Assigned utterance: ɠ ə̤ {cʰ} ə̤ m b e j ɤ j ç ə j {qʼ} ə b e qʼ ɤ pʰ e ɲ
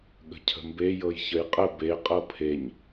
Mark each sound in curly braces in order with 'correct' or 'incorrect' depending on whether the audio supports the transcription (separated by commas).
correct, correct